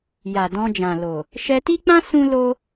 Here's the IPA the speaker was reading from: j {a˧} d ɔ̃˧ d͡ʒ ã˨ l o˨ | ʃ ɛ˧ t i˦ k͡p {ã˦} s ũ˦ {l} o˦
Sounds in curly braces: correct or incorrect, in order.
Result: incorrect, correct, correct

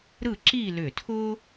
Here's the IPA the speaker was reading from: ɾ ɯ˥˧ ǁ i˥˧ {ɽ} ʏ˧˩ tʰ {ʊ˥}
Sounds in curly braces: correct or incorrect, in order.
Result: incorrect, correct

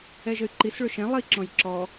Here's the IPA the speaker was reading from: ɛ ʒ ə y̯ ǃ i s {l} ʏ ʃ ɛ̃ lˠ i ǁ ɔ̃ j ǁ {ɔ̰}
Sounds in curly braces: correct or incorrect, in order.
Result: incorrect, incorrect

